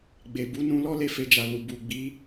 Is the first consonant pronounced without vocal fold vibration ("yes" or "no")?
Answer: no